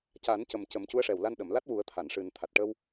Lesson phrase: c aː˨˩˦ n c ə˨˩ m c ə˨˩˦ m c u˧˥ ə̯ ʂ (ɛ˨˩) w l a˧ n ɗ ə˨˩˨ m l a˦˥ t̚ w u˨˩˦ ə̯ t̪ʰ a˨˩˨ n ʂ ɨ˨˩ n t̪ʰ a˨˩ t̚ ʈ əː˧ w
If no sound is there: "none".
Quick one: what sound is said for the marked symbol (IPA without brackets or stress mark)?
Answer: ɛ˨˩